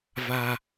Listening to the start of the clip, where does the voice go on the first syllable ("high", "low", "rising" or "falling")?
high